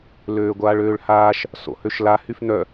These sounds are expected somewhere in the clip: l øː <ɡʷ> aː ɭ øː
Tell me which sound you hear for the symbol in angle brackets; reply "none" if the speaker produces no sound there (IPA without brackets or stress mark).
ɡʷ